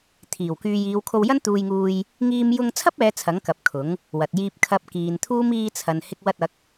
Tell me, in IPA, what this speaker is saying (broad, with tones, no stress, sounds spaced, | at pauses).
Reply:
t̪ʰ iː˨˩ w k yː˨ j iː˨˧ w kʰ o˧ w j ɐ˥ n t̪ uː˧ j ŋ uː˧ j | ŋ iː˧ m j ʊ˧ ŋ t͡sʰ ɐ˥ p̚ ɛː˨˧ t͡sʰ ɐ˨˥ ŋ k ɐ˨ p̚ kʰ ʊ˨˥ ŋ | w ɐ˨ t̚ j iː˧ p̚ kʰ ɐ˧ p̚ k iː˨ n t̪ʰ uː˥ m iː˧ t͡sʰ ɐ˨ n h ɪ˧ k̚ w ɐ˧ t̚ ɐ˨˥ k̚